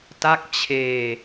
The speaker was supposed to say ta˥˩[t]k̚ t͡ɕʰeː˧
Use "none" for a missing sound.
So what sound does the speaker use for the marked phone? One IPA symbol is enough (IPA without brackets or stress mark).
none